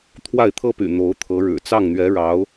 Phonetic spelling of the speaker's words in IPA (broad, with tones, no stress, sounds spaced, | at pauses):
t̪ʰ w a˥˩ ɪ̯ t̪ʰ ɤ˥ p y̰˨˩ n̪ o˧˥ ʊ̯ t̪ʰ ɤ˧˥ ɻ ɻ̩˨˩ t͡s ɑ˥˩ ŋ n̪ ɥ ɛ˧˥ ɻ ɑ˧˥ ʊ̯